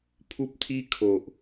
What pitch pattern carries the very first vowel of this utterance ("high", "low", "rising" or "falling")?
high